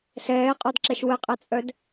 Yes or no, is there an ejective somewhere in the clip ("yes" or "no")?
yes